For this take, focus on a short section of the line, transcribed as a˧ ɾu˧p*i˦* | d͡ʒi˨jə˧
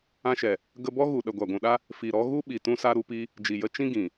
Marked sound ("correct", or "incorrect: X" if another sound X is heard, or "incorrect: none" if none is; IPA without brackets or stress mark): correct